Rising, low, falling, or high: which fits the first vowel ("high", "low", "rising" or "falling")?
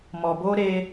low